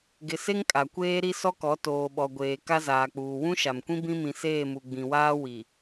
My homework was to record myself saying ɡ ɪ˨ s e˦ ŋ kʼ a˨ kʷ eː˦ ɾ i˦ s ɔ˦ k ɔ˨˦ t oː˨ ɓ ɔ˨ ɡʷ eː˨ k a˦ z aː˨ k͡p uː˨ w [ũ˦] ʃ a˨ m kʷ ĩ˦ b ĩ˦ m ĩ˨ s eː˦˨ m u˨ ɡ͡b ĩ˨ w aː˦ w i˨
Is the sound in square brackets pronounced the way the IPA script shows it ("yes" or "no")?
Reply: yes